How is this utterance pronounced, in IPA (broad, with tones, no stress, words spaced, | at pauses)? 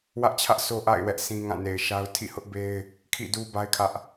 wä˦ʔt͡ɕʰä˦ʔ sʰo˦ʔa̰˦˨ɪ̯ wɛ˦ʔsʰĩ˦ŋã˦˨ ne˨ɪ̯ʃa˦ʊ̯ tʰḭ˦˨hʊ˦ʔbe˦ɪ̯ | kʰḭ˦˨du˦ba˦ɪ̯ kʰä˦ʔ